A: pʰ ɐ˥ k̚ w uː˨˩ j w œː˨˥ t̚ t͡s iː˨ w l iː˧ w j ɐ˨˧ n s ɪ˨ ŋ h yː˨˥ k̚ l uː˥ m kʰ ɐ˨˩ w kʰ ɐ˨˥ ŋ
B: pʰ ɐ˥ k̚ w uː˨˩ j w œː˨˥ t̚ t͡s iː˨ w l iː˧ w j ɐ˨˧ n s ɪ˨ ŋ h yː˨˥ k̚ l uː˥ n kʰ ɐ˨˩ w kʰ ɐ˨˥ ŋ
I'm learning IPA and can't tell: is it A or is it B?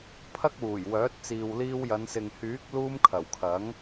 A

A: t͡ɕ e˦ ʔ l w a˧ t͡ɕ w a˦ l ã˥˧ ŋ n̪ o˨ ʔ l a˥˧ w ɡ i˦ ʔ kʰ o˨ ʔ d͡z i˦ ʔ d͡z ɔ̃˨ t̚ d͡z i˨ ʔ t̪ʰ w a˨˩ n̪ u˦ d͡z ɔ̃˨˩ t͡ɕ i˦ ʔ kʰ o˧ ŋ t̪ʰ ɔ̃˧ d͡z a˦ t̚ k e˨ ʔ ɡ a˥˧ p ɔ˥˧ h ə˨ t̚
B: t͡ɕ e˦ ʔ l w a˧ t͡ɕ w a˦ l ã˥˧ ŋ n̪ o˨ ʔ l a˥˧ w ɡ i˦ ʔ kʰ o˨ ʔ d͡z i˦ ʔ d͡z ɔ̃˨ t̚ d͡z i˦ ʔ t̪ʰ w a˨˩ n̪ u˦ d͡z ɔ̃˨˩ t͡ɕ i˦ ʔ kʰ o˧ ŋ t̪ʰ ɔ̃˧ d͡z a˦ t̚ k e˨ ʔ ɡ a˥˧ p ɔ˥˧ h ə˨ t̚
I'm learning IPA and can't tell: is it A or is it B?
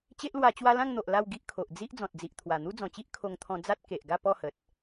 A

